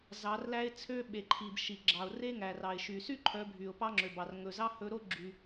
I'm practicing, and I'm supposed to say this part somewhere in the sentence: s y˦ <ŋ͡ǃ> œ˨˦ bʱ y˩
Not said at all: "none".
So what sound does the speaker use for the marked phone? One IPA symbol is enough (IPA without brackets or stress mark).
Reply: ǃʰ